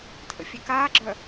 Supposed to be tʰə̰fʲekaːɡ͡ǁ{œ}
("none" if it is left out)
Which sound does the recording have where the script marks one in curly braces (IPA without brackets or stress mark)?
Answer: œ